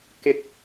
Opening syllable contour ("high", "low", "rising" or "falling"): high